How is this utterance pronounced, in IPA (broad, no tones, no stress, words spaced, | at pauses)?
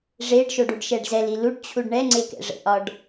ʐeɖʃoɖ uɖʃɛɖzɛl iluɖt͡ɕʰuɖ ɳɛŋ͡ǀekɛ̰ ʐə̰ʔɒɖ